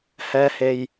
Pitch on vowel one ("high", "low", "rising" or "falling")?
low